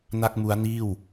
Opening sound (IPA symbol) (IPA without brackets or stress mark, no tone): n